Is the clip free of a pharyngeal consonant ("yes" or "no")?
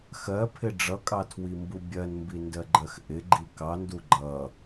yes